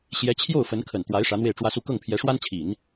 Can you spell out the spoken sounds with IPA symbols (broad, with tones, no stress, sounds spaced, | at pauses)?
ɕ j ɛ˧˥ t͡ɕʰ j o˥˩ ʊ̯ f ə˧˥ n kʰ ə˨˩ n t̪ w a˧˥ ɪ̯ ʂ ä˧˥ n̪ w e˥˩ ɪ̯ ʈ͡ʂ w ä˥ s u˥˧ k ɤ˥˩ ŋ pʰ j ɛ˧˥ ʂ w a˥ n t͡ɕʰ i˨˩˦ n